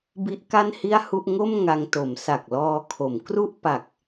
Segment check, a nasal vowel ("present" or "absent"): absent